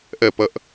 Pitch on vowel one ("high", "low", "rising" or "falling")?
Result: falling